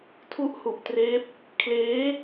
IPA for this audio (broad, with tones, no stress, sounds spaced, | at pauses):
tʰ u˦˥ ʔ h u˨˩ ʔ t r eː˦˥ p̚ | kʰ l eː˦˥